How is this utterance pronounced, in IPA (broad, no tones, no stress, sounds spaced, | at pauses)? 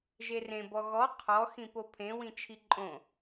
ʒ e r ẽ b ɔ ɣ ɔ qʰ ɔ x ĩ p o pʰ ẽ w ĩ t͡ʃʰ i ǃʼ õ